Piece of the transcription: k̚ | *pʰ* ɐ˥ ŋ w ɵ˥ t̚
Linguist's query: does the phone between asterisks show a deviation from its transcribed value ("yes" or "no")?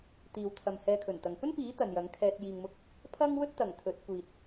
no